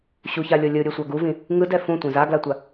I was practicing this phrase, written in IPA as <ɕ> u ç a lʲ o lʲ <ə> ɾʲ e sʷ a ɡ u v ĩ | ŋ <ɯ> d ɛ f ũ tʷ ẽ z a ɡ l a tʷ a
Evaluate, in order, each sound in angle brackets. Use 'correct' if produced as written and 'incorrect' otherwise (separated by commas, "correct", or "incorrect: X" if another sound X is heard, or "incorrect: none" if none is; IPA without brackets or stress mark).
correct, incorrect: ɯ, correct